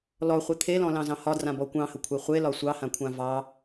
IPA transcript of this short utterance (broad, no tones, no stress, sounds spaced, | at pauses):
l ɔ χʷ ɯ t̪ʰ e l ɔ̃ l ɑ̃ z ɑ̃ h ɒ d r ã b ɔ kʷ ɑ̃ h ə kʷʰ e χʷ e l ɒ sʷ ɑ h ã kʷʰ ã v ɑ